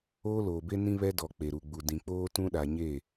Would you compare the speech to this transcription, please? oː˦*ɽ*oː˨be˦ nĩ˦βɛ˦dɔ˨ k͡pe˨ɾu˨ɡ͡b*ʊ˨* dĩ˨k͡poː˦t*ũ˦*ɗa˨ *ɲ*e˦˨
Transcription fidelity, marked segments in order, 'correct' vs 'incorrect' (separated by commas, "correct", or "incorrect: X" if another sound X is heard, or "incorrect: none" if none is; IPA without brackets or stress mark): incorrect: l, incorrect: u˨, correct, correct